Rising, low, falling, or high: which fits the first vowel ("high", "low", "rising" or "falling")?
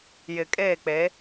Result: low